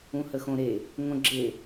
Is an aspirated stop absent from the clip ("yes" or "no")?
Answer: yes